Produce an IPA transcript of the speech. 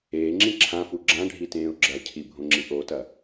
eː ŋ͡ǁ ĩ ǁʰ ã f u ɡ͡ǁ ã ɖʱ i t ẽː ʊ̯ ɡ͡ǁ ɐ cʰ i bʱ õ ŋ͡ǁ i ʔ o t ɐ

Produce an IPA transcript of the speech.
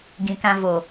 ɡ ĩ˨ k ã˧ v o˨

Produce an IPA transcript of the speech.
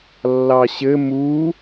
lː ɑ ɕ ɘ m u

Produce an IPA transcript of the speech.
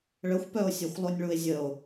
ɭ ə xʷ p œ o̯ sʲ a xʷ lˠ o nʲ ɭ u e̯ zʲ ə o̯

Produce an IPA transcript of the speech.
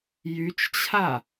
j y t͡ʃ t͡ɕʰ a

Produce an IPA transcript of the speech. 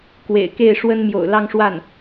k w ḛ˨˩ ɪ̯ k e˥˩ ɪ̯ ʂ w ə˥ n m j o̰˨˩ ʊ̯ l ɑ˥˧ ŋ ʂ w a˥˩ n

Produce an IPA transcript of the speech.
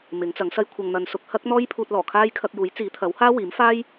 m ɪ˨˥ ŋ t͡s ɐ˨˥ ŋ s ɐ˥ j kʷʰ ɐ˧ ŋ n̪ ɐ˧ n s ʊ˧ k̚ h ɐ˥ k̚ n̪ ɔː˥ j pʰ uː˧ t̚ l ɔː˨˩ kʰ aː˥ j kʰ ɐ˧ k̚ j uː˨˥ j t͡s iː˨˥ t̪ʰ ɐ˨˥ w h aː˥ w iː˨˥ m f aː˥ j

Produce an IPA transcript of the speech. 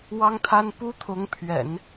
w ɑ˥ ŋ t̪ʰ a˥ n p u˥ t̪ʰ ʊ˧˥ ŋ pʰ ɥ ɛ̰˨˩˦ n

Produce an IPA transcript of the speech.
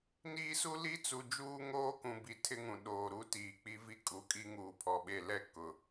n iː˦ s u˦ l i˦ t͡s u˨ d͡ʒ uː˦ ŋ oː˦ k ũ˨ b i˨ tʰ ɪ˦ ŋ ũ˨ ɗ oː˨ ɾ u˦ t iː˨ k͡p i˦ v i˦ kʼ u˨ kʼ i˦ ŋ uː˨ pʰ ɔ˨ ɓ e˦˨ l ɛ˦ k ʊ˨

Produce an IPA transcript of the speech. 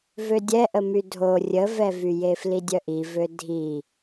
v ø dʲ ɛ ʔ ə m y dʱ o rʲ ə v ɛ v y j e f l i dʲ œ ʔ i v ø dʱ i

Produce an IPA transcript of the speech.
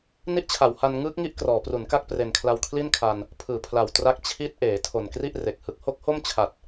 n i˦˥ ʔ t͡ɕʰ a˩˦ w h a˧ n ŋ ɯː˦˥ k̚ ŋ i˦˥ ʔ k r ɔː˩˦ p r u˩˦ n k a˥˩ k̚ p r e˨˩ n kʰ l a˧ w kʰ l i˥˩ n kʰ a˧ n | pʰ ɯː˨˩ pʰ l a˨˩ w t r a˦˥ k̚ t͡ɕʰ i˦˥ t̚ ʔ eː˩˦ tʰ o˨˩ n k r i˥˩ ʔ r e˨˩ k̚ h ɯ˨˩ k̚ h o˥˩ k̚ h o˥˩ m t͡ɕʰ a˨˩ t̚

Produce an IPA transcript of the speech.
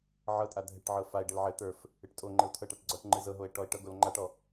ʕ ɤ tʼ a dʱ ɘ ʈ ʕ ɤ f a e̯ ɖ ɘ l ʕ ɘ t̪ ə˞ f | ɨ ʈ tʼ o ŋ͡ǃ ɘ o̯ tʰ ɤ ʈ a ʈ ɡ͡ǀ ɔ ʈ ŋ͡ǃ ɨ z ɤ ɦ o e̯ ʈ ɔ e̯ ʈ ɤ ɡ o l ŋ͡ǃ a ʈ ɔ

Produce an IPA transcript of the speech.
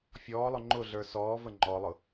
fʲ ɔː lˠ ʊ ŋ͡ǃ ʊ ɮ ə˞ s ɔː v ə ŋ͡ǃ ɔ lˠ ʊ

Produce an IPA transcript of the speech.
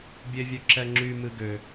bʲ e vʲ ø ǁ ɛ ŋ͡ǁ y m ɨ ɡ ø

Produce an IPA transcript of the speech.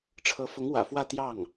ʈ͡ʂʰ ɤ˧˥ f ʊ˧˥ ŋ w ä̰˨˩ f w ä˥˧ t̪ j ɑ˥˩ ŋ

